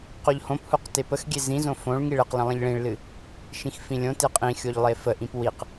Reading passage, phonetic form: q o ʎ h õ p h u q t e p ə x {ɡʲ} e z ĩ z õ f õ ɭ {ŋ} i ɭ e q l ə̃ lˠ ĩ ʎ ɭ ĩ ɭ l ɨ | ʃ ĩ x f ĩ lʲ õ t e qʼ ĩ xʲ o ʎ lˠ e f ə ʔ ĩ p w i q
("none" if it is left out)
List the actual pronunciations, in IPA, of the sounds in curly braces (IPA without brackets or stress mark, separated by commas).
ɡʲ, ŋ